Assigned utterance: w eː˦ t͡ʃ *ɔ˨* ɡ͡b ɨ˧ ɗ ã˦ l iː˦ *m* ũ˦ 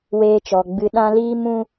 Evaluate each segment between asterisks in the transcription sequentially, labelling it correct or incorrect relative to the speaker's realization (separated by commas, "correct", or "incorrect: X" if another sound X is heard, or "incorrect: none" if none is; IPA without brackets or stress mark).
incorrect: ɔ˧, correct